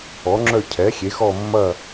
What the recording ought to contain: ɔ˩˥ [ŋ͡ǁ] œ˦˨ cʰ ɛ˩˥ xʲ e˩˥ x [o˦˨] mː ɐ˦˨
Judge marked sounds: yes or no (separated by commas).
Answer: yes, no